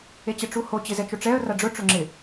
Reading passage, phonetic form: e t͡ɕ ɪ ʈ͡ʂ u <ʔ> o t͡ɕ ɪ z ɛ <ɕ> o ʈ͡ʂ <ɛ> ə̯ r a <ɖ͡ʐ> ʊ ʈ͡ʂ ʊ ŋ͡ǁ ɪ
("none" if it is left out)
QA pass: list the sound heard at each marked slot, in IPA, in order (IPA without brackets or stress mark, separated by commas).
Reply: h, t͡ʃ, ɛ, ɖ͡ʐ